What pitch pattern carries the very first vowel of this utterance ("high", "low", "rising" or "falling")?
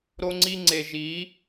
high